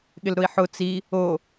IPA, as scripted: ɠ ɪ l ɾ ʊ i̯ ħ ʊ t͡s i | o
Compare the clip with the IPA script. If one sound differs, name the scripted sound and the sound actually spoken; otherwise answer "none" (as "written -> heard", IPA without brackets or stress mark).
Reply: none